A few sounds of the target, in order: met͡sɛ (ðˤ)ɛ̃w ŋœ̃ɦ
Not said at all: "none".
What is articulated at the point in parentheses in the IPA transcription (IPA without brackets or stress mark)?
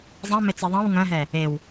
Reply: ðˤ